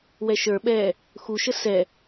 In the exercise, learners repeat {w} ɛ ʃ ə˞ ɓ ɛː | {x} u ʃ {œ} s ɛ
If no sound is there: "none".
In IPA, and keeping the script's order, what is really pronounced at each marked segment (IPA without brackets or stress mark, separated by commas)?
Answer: w, x, ə